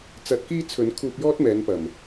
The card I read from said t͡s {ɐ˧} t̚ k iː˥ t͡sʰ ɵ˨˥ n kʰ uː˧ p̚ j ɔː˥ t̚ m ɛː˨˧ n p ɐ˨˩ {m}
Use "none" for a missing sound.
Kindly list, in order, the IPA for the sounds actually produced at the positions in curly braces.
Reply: ɐ˨˥, m

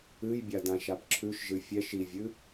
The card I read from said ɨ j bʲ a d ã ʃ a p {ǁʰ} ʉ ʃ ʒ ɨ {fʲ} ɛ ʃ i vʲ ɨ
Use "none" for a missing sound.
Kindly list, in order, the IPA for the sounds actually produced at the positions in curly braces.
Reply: ǁʰ, fʲ

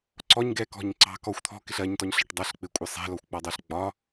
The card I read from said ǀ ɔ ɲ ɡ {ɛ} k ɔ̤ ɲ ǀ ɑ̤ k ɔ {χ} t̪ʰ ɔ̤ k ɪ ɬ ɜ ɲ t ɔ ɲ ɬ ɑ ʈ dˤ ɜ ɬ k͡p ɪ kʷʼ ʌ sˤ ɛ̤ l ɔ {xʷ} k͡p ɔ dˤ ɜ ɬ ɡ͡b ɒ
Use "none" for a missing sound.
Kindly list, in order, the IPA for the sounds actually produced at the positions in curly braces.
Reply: ɛ, xʷ, xʷ

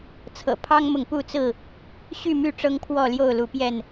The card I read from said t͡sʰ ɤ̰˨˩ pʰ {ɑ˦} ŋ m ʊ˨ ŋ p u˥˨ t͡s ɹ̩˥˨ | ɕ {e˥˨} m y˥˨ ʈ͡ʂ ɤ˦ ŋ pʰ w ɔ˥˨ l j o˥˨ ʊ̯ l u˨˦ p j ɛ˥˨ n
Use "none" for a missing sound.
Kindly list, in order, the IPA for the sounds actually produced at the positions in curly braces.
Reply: ɑ˦, y˥˨

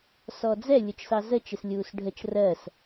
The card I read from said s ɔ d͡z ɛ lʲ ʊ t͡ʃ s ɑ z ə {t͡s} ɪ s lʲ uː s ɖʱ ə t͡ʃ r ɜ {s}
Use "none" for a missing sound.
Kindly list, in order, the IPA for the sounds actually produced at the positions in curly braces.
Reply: t͡ʃ, s

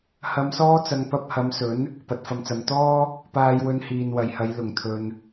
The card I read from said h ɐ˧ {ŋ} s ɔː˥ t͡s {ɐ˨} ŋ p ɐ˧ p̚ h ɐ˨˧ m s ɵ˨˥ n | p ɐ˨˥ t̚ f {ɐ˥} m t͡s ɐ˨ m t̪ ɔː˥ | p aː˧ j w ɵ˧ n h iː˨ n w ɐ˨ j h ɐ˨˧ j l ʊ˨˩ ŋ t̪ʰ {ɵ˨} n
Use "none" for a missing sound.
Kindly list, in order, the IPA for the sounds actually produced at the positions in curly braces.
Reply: m, ɐ˧, ɐ˨, ɵ˨

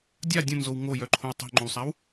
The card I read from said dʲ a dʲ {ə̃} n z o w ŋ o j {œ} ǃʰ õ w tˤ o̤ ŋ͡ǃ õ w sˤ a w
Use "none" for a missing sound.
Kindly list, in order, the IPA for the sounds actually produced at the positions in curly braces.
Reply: ə̃, œ

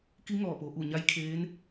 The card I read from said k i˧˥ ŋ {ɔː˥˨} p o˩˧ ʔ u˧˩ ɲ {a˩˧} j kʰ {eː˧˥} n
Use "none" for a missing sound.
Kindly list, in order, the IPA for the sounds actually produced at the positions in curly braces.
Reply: ɔː˧˩, a˧˥, eː˧˥

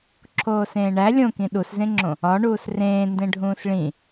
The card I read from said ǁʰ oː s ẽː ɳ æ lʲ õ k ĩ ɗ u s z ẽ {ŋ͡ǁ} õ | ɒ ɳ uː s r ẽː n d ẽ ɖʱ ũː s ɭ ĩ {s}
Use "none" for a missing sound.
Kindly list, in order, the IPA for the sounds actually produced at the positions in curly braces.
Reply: ŋ͡ǁ, none

